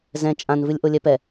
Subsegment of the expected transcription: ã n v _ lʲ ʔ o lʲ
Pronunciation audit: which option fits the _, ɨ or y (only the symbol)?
ɨ